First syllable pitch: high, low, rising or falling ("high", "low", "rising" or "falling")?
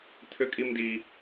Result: high